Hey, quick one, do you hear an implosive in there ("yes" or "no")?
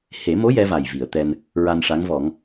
no